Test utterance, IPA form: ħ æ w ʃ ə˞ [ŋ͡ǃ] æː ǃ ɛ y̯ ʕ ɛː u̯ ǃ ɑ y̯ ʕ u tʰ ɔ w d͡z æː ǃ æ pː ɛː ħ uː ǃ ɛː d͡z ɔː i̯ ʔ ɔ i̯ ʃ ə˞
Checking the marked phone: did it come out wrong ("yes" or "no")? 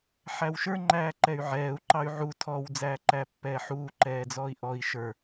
no